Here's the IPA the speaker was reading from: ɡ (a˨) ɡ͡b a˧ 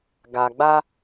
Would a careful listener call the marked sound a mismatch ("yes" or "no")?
no